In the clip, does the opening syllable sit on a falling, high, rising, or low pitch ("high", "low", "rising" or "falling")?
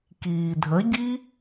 low